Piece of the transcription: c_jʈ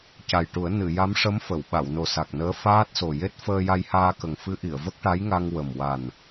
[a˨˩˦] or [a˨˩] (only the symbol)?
a˨˩